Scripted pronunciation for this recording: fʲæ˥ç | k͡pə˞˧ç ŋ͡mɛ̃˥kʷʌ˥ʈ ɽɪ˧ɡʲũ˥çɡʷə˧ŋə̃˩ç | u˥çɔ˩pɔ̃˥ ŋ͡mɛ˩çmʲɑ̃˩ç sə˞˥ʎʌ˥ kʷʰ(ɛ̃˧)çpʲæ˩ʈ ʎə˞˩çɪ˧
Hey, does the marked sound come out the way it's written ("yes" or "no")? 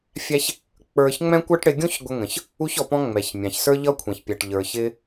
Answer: no